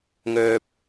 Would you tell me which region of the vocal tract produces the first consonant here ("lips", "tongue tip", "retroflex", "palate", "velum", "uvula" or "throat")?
velum